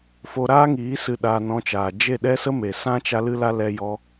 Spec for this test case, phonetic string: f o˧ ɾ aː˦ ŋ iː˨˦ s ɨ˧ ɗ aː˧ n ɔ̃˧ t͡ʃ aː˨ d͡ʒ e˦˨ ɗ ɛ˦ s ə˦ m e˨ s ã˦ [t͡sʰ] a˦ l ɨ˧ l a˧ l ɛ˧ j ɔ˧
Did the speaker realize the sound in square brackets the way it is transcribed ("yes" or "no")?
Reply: no